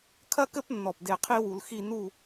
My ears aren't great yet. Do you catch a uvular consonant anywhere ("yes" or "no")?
yes